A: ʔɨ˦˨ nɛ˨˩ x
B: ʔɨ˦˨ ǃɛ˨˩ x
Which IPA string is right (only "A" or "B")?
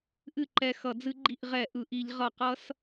B